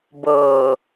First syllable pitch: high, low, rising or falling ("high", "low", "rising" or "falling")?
low